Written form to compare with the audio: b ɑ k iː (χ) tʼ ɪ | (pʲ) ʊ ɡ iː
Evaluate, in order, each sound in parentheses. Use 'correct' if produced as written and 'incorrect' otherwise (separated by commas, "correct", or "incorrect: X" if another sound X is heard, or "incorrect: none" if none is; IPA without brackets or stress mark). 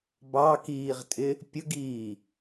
incorrect: ʁ, correct